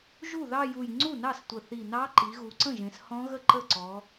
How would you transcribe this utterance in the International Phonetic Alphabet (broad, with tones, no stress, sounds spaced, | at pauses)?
ʒ u˥˩ ð ɑ˥˧ j u˨˩ j ŋ͡ǀ u˥˩ n ɑ˥˩ s tʷ ə˨˩ θ i˨˩ n ɑ˦˥ ǃ i˩˧ ɣ u˩˧ ǀ ə̃˥˩ ʒ ẽ˩˧ s h ɔ̃˦˥ ɣ ə˥˩ ǃ ə˥˩ ǀ ɔ˩˧